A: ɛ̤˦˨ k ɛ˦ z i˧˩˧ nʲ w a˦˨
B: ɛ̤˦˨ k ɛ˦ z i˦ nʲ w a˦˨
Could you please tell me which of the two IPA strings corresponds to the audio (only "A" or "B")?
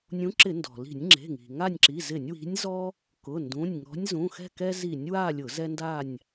A